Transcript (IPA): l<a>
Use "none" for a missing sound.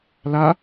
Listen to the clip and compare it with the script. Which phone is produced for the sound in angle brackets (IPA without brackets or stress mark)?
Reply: a